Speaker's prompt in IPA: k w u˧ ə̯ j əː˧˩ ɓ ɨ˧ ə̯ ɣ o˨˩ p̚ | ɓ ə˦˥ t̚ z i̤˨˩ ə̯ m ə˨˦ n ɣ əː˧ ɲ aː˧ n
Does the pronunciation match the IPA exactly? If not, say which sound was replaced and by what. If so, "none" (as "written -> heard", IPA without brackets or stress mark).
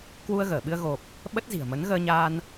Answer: j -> ɣ